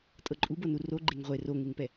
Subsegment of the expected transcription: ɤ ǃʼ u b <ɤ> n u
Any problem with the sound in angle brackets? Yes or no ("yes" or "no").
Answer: no